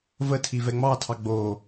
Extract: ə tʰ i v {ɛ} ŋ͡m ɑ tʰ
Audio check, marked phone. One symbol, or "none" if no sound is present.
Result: ɛ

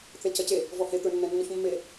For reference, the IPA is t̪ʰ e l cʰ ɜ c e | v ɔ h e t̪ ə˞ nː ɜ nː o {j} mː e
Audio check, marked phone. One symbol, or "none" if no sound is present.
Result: ç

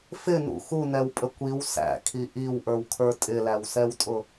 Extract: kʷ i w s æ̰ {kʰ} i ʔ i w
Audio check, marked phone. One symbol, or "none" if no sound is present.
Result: kʰ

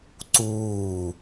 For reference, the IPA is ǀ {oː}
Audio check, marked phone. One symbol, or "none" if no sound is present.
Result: uː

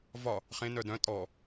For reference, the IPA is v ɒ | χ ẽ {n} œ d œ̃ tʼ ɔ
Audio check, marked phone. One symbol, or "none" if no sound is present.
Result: n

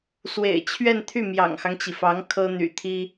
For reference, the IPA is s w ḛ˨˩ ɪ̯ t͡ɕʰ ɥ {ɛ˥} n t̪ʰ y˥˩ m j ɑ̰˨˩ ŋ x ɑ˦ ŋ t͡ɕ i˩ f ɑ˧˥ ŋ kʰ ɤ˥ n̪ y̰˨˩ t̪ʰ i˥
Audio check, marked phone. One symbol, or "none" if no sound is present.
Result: ɛ˥˧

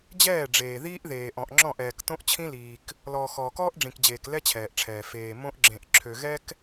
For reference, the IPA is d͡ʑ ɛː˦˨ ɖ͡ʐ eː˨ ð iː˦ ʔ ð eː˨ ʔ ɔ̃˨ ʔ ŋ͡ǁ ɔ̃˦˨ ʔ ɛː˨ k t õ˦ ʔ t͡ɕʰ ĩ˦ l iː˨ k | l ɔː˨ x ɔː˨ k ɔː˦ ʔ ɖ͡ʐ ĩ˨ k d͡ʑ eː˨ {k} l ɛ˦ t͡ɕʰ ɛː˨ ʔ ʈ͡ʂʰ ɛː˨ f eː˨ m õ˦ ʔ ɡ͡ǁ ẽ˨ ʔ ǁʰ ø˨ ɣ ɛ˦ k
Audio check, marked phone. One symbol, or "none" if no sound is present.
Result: k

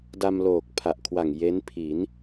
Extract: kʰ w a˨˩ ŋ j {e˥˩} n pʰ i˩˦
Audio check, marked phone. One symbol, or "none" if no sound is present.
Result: e˦˥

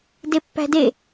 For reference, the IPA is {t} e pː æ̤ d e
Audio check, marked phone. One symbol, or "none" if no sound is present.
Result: d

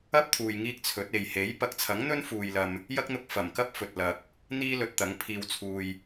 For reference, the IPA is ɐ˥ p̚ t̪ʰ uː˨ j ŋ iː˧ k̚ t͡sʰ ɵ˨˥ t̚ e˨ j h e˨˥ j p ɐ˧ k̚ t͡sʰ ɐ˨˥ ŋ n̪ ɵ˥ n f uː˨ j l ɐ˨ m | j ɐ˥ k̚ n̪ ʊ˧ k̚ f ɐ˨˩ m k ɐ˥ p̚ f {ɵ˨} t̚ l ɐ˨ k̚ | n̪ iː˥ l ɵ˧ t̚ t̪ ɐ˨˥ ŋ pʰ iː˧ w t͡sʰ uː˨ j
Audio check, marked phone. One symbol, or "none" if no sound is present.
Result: ɵ˨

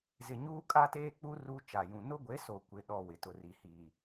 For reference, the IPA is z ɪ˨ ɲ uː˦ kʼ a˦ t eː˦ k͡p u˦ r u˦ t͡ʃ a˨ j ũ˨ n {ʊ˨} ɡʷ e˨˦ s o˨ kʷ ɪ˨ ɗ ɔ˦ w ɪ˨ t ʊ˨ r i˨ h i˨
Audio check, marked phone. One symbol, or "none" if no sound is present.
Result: ʊ˦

